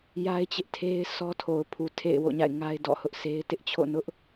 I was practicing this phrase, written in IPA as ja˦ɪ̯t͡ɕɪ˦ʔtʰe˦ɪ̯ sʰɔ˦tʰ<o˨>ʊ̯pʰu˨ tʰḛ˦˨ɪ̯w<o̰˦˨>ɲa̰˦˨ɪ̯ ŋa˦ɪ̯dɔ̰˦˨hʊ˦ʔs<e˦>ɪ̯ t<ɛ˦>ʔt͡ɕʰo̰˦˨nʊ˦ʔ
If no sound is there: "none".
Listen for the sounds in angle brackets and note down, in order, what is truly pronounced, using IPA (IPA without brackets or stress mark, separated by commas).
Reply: o˨, o̰˦˨, e˦, ɪ˦